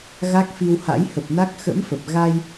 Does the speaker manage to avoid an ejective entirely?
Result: yes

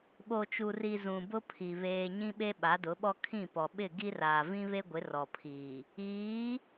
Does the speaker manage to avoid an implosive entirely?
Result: no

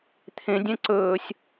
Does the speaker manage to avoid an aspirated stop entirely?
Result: no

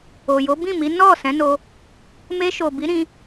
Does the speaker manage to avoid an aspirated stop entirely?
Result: yes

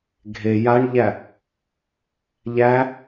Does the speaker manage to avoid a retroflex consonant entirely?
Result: no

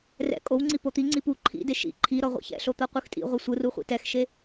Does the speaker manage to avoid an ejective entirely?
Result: no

